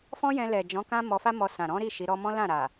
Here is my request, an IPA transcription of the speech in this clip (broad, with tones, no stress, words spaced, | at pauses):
fɔ̃˦jɛ̃˧ lɛ˨d͡ʒɔ̃˨˦kã˦ mɔ˧fa˦mɔ˧sã˨ ɾɔ̃˨˦ɾi˦˨ ʃi˨˦ɾɔ˦ mɔ̃˦lã˦˨ɾa˨